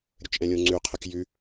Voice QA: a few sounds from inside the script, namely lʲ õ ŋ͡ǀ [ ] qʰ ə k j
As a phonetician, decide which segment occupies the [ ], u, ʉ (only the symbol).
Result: ʉ